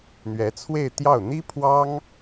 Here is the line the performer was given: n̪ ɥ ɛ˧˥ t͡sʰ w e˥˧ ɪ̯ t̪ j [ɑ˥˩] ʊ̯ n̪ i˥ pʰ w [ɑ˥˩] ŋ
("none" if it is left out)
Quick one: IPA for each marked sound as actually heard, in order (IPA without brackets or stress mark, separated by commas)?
ɑ˥˩, ɑ˥